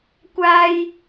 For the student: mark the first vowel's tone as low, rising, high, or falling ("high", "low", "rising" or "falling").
high